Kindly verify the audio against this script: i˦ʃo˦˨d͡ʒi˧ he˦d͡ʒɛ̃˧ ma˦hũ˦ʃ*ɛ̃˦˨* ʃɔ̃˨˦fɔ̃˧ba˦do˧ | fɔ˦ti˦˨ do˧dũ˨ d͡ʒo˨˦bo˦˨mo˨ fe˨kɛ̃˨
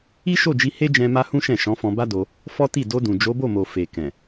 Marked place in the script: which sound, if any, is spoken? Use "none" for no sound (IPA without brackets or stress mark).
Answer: ɛ̃˦˨